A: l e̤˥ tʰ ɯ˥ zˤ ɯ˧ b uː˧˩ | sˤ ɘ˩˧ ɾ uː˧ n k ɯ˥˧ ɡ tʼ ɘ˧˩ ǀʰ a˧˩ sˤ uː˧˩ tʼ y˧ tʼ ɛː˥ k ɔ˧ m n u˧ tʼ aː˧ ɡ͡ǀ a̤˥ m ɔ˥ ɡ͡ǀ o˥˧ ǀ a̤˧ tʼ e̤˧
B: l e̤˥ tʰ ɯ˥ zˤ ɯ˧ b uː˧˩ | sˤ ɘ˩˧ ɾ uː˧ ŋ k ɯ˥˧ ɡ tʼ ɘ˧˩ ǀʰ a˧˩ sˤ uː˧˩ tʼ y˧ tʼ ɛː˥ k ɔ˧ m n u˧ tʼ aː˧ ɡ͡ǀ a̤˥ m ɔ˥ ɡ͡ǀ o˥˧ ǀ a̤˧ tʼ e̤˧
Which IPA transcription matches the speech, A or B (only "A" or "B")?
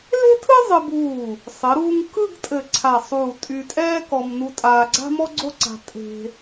B